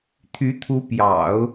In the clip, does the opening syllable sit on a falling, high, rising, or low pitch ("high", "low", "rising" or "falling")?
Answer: rising